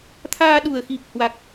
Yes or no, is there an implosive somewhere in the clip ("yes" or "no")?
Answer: yes